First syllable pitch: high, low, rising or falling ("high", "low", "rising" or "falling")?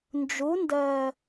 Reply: rising